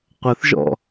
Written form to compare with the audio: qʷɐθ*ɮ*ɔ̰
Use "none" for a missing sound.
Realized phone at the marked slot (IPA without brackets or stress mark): ʒ